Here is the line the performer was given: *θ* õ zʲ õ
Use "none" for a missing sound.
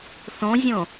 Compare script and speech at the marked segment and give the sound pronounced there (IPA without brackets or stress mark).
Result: θ